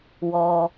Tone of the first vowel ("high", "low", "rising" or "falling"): low